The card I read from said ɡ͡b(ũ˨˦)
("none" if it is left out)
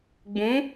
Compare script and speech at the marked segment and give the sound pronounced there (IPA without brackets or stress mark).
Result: ũ˨˦